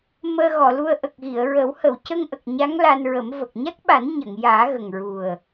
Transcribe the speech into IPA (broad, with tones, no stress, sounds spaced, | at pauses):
m əː˧ ɣ ɔ˨˩˨ l u˧ ə̯ ʔ ə˨˩ k̚ ɣ i˨˩˨ ə̯ ɹ ə˨˩˦ w h ə˨˩˨ w c ə˧ ŋ ʔ ə˨˩ k̚ ɲ a˧˥ ŋ l a˧ n ɹ ə˨˩˦ m v ə˨˩ k̚ ɲ a˦˥ k̚ ɓ a˨˩˦ n ɲ ə˨˩˨ ŋ j aː˨˩˦ ɣ ə˨˩ ŋ ɹ u˨˩ ə̯